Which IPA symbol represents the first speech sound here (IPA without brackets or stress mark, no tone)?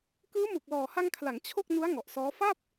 k